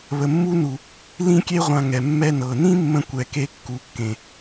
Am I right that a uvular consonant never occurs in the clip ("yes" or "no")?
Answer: no